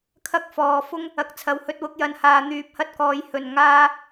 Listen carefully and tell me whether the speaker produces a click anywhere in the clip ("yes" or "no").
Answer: no